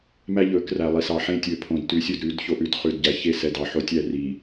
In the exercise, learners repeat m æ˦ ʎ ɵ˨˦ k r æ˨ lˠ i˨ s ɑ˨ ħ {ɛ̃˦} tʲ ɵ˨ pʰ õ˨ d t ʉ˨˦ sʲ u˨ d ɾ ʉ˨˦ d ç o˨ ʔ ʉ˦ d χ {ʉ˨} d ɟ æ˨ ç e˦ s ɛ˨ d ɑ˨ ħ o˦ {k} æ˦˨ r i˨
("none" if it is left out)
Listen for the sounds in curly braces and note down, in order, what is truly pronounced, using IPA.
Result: ẽ˦, ʉ˨, tʲ

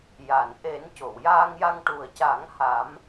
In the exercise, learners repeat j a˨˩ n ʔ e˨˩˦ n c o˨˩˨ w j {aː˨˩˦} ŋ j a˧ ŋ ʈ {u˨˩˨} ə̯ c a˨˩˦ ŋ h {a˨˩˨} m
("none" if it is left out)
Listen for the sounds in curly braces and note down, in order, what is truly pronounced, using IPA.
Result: aː˧, u˨˩, a˨˩˦

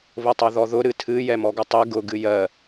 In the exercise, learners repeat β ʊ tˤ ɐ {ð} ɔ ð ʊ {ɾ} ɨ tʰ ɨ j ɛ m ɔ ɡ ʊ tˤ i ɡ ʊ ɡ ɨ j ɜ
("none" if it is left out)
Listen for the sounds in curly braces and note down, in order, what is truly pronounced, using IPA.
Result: ð, ɾ

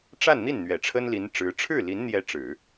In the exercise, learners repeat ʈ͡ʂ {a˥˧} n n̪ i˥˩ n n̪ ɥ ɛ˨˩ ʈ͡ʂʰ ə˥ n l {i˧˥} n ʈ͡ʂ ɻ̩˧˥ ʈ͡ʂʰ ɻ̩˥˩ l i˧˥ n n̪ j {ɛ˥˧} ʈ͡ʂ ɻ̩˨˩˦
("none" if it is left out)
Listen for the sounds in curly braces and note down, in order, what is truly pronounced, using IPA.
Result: a˥˧, i˧˥, ɛ˧˥

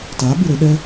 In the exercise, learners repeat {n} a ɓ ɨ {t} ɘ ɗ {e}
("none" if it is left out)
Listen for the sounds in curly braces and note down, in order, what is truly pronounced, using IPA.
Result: t, ɾ, ɛ

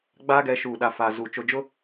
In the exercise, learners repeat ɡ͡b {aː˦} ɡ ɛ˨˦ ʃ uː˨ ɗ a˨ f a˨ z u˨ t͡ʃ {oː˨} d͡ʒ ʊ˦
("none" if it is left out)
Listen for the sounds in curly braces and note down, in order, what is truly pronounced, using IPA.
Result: aː˦, o˨

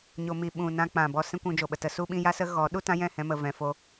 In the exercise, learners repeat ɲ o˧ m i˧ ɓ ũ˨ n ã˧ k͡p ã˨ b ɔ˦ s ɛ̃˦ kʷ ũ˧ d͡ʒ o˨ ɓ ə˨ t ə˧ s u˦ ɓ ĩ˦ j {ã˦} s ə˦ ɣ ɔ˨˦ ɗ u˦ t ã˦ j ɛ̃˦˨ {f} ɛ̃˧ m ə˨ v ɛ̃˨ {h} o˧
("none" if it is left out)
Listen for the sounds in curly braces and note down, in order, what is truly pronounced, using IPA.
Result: a˦, h, f

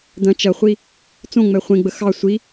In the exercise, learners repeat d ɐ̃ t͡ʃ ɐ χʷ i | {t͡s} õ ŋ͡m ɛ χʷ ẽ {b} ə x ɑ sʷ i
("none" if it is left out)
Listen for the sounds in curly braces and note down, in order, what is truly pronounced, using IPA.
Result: t͡s, ɡ͡b

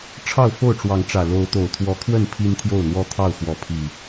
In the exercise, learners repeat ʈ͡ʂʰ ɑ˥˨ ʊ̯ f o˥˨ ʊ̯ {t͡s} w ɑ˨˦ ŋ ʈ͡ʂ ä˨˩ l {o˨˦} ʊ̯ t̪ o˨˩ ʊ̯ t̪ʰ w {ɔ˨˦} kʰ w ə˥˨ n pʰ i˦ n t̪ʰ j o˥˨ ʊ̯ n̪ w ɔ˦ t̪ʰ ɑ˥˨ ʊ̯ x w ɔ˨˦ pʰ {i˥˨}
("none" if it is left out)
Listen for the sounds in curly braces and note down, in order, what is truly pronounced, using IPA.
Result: ʈ͡ʂ, o˨˦, ɔ˨˦, i˨˩

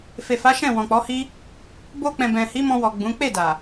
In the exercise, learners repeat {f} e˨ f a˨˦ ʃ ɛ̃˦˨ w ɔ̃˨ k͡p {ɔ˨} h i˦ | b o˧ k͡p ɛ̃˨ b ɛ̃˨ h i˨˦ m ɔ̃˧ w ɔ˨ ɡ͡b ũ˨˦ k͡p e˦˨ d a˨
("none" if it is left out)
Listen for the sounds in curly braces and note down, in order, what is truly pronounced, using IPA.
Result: f, ɔ˨˦

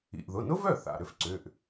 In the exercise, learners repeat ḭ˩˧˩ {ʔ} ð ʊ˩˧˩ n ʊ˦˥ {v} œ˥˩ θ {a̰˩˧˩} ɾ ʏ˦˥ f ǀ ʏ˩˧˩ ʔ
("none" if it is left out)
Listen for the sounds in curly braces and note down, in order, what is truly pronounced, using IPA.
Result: ʔ, v, a̰˩˧˩

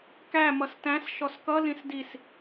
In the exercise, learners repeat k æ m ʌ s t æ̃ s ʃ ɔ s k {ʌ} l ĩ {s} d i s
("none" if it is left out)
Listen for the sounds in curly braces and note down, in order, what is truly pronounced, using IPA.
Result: ʌ, s

